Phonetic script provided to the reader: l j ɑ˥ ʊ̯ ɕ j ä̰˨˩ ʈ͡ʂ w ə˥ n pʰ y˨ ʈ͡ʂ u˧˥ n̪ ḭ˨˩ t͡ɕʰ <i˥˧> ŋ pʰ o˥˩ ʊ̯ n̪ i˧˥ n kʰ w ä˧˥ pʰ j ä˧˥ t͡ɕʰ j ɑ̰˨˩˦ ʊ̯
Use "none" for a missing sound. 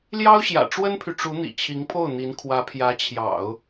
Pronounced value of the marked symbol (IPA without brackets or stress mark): i˧˥